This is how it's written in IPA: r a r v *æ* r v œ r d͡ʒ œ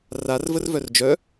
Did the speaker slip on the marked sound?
yes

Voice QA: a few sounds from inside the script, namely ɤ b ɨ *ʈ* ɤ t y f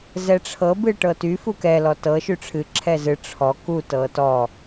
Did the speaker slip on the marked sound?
no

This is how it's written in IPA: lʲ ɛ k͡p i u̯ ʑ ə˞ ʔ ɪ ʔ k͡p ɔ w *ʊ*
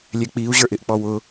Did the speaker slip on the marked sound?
no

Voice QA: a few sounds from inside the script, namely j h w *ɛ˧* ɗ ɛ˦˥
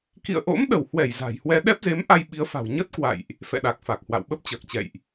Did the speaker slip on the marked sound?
no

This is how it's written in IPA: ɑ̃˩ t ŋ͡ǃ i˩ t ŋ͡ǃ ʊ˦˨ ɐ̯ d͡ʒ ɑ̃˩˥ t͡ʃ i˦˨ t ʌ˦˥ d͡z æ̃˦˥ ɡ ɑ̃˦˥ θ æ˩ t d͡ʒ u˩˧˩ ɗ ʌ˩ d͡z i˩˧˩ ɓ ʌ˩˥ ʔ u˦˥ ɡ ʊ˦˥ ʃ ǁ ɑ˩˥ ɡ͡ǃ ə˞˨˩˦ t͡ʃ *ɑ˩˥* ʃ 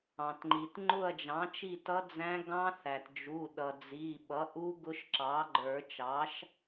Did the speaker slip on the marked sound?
no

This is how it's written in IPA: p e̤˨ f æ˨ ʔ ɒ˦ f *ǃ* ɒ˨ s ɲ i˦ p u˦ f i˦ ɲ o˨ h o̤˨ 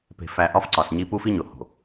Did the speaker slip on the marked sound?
yes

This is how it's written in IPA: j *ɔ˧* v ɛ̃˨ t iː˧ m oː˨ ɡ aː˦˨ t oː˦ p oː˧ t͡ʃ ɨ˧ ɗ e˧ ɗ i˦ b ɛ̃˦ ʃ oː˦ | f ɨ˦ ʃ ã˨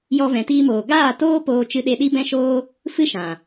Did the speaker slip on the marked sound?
no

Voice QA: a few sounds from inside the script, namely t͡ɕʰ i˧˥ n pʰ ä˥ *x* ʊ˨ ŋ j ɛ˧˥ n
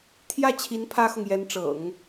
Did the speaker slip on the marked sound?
no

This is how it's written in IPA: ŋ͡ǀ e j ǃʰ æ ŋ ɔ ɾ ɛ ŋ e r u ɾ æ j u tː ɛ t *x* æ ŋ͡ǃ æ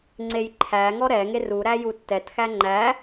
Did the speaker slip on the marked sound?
no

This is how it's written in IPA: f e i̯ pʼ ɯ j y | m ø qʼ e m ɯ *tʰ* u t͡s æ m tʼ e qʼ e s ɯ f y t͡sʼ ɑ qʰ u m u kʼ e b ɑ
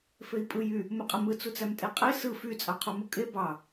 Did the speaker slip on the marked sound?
yes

